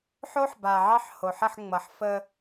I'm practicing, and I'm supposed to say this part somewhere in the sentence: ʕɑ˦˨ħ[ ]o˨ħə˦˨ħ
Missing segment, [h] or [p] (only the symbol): h